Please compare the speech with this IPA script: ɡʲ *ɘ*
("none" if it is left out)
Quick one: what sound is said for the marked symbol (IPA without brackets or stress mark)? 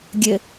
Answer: ɘ